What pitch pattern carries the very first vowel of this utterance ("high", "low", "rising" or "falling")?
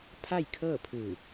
falling